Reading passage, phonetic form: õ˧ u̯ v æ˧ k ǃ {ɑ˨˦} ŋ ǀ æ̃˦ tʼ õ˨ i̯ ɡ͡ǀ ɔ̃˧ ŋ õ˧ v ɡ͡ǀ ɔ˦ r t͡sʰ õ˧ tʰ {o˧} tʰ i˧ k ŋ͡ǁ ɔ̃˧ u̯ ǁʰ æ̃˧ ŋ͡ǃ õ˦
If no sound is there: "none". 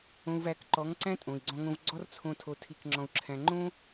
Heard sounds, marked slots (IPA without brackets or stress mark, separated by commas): ɔ˨˦, o˧